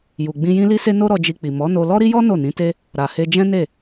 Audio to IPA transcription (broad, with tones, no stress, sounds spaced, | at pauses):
j u˨ ɡ͡b ĩ˧ j ĩ˦ l i˦ s e˦ n o˦ ɾ ɔ˧ d͡ʒ i˧ k͡p i˨ m ɔ˨˦ n o˧ l ɔ˦ ɾ i˦ j ɔ˦ n o˦˨ n ĩ˨˦ t e˦ | ɾ a˨ h e˧ d͡ʒ ɛ̃˦ n e˦˨